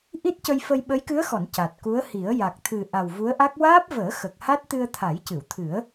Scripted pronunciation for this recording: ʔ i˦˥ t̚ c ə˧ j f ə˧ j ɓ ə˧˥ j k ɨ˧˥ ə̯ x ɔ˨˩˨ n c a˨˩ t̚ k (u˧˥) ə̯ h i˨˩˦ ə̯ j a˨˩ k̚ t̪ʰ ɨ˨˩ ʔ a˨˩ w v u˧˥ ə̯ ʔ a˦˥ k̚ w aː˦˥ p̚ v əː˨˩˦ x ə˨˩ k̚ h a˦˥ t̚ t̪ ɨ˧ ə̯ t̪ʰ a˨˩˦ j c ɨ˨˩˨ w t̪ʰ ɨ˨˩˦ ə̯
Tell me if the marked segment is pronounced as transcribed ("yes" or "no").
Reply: yes